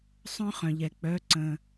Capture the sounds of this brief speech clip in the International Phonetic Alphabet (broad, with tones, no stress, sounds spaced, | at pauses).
sˤ œ̃˦˥ χ œ̃˩ ʎ ɛ˩ k͡p œ˩˧˩ ǀ ə̃˩